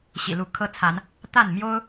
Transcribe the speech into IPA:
ɕḭ˨˩lu˨˦kʰɤ˦t͡sʰa˨˦n | t̪a˥˨nmjo˦ʊ̯

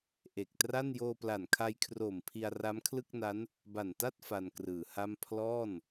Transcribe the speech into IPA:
ʔe˨˩k̚tra˥˩n joː˧pla˨˩nkʰa˧jkʰroː˨˩m pʰi˧a̯ra˦˥mkʰlɯ˥˩k̚na˦˥n | ba˨˩nta˥˩t̚ fa˧nkrɯː˩˦ha˥˩m pʰlɔː˥˩n

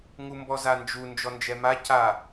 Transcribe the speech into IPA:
ŋumbɔzand͡ʒu nd͡ʒɔnd͡ʒɛma ca

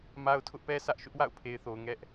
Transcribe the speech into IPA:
ma˦ʊ̯ tʰʊ˦ʔpɛ˦sä˦ʔ ʃʊ˦ʔwa̰˦˨ʊ̯pʰe˨ɪ̯θo˨ʊ̯ ŋɛ˦ʔ

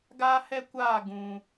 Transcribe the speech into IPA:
ɡaː˦hɛ˦kʷaː˦˨ ɡũ˨

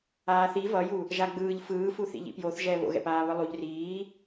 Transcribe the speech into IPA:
aːθi vʌju | ʒaɡ͡bɯːʎ fɯːfuθḭ ʎḭpjoθ ʒɛːβo̰ɣɛ̰paː βɯlˠuʎ riː

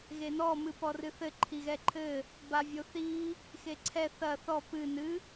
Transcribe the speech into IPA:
ɣenɔ mɨpɔrɨθɘ ǃʰiɣɛǃʰɘ | bavʲoθi | xeǀʰɛ θɐ θɔ pɨ nɨ

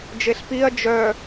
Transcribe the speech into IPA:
d͡ʒeɬpiɐ̯ d͡ʒœ

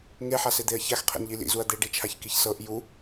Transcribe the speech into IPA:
ŋeħased̪eɐ̯ çaxqʰḛnʎi lḭzuɐ̯ d̪eɖit͡ʃʰaçkiç sɤʔ ju

